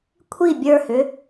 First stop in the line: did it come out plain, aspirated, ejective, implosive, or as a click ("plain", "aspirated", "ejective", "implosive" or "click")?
aspirated